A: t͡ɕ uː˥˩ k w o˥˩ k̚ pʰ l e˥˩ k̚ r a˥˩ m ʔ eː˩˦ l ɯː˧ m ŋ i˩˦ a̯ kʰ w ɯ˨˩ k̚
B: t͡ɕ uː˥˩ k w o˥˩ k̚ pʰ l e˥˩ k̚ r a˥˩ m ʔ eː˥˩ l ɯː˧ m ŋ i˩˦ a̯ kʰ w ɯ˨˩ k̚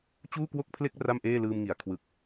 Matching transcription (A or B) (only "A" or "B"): B